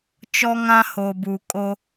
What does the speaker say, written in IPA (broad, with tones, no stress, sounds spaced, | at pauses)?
t͡ʃ ɔ˦ ŋ ã˦ h o˨ b u˨ kʼ o˦